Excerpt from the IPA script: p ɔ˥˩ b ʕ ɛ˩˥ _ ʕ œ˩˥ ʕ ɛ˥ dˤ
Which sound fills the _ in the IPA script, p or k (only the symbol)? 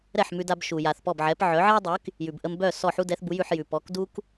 p